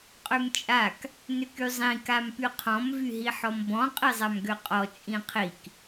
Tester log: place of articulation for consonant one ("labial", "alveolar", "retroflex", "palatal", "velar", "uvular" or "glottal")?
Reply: uvular